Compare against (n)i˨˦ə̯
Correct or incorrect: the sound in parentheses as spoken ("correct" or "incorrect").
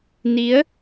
correct